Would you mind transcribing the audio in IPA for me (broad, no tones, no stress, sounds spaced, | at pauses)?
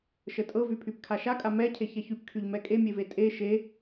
ʃ ə tʼ ɤ v y pʰ y p kʰ a ʃ a kʼ a m ɛ cʰ e ç ɛ ç y p kʰ y ʎ m ɛ kʼ e mʲ e v e tʼ e ʃ e